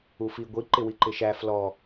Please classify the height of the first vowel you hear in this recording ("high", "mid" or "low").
high